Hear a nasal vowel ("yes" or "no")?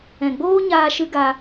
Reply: yes